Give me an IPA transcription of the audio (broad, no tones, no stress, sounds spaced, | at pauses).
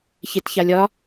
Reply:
ç e t ç a lʲ ɒ